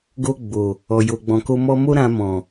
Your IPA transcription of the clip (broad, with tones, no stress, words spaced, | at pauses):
ɡo˧ ɡ͡bo˨ | ɔ˨jo˨ɡ͡bɔ̃˨ko˧ mɔ˧mo˦ ɾã˧mɔ̃˨